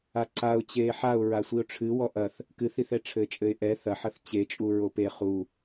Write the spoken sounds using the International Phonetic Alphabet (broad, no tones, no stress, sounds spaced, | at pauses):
a ǀ a ʊ̯ t͡ɕ eː ħ a ʊ̯ ɹ a sʷ i ʊ̯ ʈ͡ʂʰ ɨ w ɔ ʔ ɐ θ | k ɨ θ i θ ɛ ʈ͡ʂʰ ɘː t͡ʃʼ ɘ ɪ̯ ʔ ɛ θ ɐ ħ ɐ θ t͡ɕ e t͡ʃʼ u ɹ o p e χ u